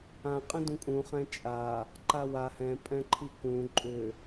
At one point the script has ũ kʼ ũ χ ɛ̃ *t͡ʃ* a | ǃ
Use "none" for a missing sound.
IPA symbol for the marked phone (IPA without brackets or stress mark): t͡ʃʼ